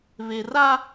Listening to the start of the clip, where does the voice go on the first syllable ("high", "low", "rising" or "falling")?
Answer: low